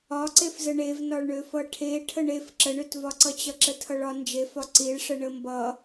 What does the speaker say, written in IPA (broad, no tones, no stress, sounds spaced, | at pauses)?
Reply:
ɒ ǀ e f z ə ɳ e v n ɒ ɭ ɳ ø f ʌ ʈʰ e ʈʰ ə ɳ e f ǁ ə ɳ ø t v ɒ ǀ ʌ t͡ɕ ʌ ǁ ə tʰ ʌ ɭ ɒ n d͡ʒ e f ɒ ǀ i ɭ ʂ ə ɳ ə m b ʌ